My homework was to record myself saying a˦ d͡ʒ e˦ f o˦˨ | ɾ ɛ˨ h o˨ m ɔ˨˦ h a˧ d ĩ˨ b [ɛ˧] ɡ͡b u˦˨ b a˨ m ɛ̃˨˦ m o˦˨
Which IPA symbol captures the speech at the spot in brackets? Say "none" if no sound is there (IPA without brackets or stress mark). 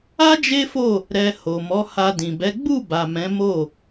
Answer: ɛ˨˦